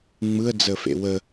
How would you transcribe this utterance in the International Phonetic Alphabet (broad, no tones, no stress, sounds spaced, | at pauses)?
ŋ͡m ɯ ə̯ d͡z ə f ḛ w ə